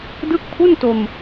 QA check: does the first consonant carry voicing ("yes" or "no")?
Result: yes